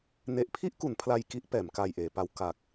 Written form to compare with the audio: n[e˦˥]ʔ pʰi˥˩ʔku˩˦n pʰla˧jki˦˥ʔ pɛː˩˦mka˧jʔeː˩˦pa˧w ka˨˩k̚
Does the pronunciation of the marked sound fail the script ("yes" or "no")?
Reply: no